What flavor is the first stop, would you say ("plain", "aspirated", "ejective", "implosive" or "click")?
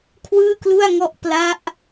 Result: aspirated